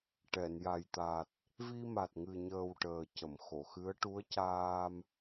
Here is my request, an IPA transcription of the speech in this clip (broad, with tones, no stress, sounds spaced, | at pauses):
ʈ ɛ˨˩˨ n j a˨˩ j t̪ a˨˩ t̚ | v i˧ m a˨˩ t̚ ŋ ɨ˨˩ ɲ əː˨˩ w ʈ əː˨˩ c ə˨˩˨ m x o˨˩˨ x ɨ˧˥ ə̯ ʈ u˧˥ ə̯ c aː˧ m